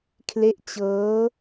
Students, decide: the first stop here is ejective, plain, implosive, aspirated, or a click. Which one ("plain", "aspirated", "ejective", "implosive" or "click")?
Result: aspirated